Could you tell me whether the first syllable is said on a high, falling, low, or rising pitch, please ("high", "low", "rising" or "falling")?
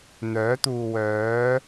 rising